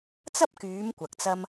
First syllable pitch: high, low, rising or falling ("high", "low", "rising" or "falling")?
high